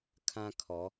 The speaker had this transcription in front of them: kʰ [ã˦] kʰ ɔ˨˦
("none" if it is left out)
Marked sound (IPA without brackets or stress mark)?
ã˦